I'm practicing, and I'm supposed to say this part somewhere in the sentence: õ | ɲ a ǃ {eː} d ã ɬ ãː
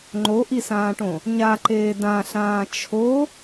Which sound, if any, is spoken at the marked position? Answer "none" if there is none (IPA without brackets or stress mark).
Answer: eː